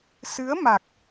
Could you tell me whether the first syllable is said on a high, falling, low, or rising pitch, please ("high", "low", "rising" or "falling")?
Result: rising